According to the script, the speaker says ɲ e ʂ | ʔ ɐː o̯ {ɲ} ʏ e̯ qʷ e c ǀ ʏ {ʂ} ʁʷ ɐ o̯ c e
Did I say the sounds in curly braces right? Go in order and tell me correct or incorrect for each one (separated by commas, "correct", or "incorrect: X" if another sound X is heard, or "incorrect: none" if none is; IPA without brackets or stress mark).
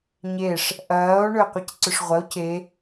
incorrect: ɳ, correct